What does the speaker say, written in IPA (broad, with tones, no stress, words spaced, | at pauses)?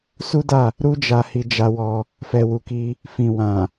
su˦da˦˨ | ɾu˦d͡ʒa˧ hi˧d͡ʒa˧wɔ˧ | fɛ˨wu˨ki˧ | fĩ˨wã˨